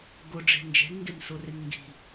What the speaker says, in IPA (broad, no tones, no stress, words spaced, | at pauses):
ɡʊɖ͡ʐe̤ nd͡ʒe̤nŋɡensʊrɪn ŋɡi̤